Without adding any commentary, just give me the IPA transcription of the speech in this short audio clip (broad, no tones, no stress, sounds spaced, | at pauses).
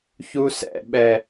ç u s ɛ̰ ɓ ɛ